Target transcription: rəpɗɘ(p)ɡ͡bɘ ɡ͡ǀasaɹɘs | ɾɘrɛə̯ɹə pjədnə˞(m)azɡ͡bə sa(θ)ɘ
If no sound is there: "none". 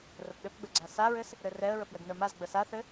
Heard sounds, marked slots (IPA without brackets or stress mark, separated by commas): p, m, θ